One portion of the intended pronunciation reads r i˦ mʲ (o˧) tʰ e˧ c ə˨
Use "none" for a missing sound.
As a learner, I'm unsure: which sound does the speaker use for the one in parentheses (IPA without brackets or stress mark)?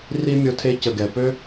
o˧